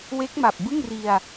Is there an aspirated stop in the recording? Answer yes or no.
no